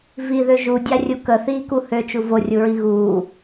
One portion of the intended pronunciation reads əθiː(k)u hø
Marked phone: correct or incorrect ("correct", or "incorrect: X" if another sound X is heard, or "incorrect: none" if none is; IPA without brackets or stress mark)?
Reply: correct